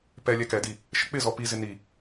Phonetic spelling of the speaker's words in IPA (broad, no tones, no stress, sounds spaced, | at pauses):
p ɛ lʲ ɛ k ɛ d i | ʃ ə k͡p ɪ z ɔ p i z ɪ n i